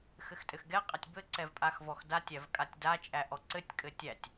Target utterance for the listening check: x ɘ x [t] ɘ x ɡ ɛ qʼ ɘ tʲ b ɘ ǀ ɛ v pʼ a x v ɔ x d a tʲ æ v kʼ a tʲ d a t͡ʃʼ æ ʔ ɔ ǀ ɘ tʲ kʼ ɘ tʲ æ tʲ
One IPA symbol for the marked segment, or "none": tʼ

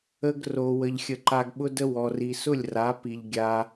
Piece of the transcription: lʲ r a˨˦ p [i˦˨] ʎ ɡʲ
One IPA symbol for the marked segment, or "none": i˨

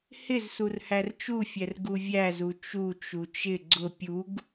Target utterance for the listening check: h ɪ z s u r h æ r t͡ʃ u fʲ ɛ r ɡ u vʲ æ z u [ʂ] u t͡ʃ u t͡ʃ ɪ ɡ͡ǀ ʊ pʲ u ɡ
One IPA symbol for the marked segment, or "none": t͡ʃ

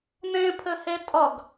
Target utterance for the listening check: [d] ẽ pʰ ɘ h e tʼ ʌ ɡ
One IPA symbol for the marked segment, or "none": n̪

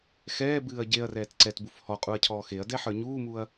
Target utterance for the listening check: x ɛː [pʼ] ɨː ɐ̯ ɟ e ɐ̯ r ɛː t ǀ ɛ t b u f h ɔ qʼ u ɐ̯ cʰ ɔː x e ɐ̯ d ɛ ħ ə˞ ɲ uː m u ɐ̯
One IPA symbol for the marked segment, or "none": b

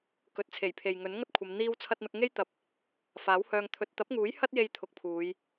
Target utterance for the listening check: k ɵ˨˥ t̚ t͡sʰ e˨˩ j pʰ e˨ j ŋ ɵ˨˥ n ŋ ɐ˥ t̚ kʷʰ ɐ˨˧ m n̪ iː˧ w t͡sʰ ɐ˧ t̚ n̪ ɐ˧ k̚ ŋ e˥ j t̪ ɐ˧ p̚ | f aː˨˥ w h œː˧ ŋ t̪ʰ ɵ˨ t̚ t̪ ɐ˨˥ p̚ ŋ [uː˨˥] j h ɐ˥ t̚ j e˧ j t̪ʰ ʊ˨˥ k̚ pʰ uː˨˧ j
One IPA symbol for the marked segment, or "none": uː˨˥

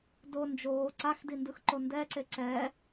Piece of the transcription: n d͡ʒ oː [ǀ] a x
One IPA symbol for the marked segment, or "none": ǀ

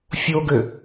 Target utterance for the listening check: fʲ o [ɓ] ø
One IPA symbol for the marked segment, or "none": ɡ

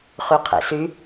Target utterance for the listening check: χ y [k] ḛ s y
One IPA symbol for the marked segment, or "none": qʰ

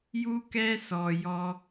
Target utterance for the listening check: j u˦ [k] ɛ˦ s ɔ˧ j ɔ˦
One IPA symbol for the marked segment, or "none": k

